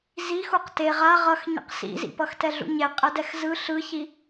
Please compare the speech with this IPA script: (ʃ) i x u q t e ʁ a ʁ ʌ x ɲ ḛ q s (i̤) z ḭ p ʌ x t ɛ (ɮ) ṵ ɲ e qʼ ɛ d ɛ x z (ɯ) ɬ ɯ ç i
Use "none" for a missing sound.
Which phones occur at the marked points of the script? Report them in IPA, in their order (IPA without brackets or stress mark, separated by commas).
z, ḭ, ɮ, ɯ